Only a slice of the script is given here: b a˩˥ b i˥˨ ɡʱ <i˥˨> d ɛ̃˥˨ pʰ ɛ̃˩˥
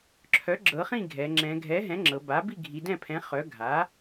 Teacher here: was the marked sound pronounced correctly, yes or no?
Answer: no